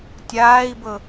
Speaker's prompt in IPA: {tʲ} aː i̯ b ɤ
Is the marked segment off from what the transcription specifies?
no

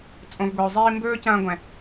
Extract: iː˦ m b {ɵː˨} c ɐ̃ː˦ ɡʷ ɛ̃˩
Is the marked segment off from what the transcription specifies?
yes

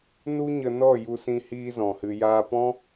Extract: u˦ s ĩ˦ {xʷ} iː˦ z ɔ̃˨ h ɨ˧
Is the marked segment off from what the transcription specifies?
yes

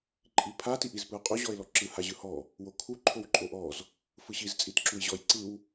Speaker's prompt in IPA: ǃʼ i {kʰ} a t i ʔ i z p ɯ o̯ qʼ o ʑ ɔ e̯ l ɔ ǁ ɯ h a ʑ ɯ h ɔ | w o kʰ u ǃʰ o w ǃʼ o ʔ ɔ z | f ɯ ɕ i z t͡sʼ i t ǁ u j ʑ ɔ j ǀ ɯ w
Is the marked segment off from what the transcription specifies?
yes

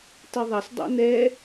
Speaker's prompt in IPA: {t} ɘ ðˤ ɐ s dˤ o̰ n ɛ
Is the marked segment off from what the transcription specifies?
no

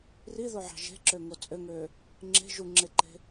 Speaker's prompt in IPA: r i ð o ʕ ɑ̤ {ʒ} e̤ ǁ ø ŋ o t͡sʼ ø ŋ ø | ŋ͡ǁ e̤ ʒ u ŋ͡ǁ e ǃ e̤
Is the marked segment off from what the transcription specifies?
no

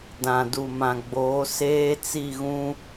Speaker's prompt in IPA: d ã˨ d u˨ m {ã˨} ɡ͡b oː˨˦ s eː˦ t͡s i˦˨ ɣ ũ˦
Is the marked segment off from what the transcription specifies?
no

